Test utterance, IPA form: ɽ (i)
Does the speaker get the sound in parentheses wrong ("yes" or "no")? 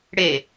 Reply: yes